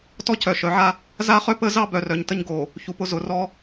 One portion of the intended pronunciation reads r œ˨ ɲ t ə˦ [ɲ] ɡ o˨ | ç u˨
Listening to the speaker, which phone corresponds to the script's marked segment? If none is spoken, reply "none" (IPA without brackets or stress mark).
ɲ